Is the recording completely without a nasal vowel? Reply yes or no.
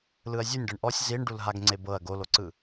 yes